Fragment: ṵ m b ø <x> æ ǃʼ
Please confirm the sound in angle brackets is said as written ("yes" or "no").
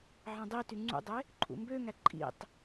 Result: no